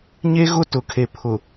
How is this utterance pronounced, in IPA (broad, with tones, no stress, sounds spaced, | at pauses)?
ɲ e˦ ɣ ʊ˦ t ʊ˨ kʰ e˨ pʰ ʊ˨